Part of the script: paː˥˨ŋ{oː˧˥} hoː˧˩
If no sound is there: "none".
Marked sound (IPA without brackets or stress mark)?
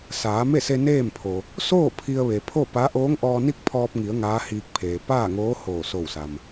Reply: oː˧˥